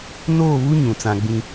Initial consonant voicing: voiced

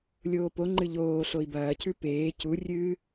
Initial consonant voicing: voiced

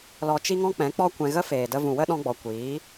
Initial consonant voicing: voiced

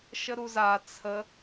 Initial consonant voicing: voiceless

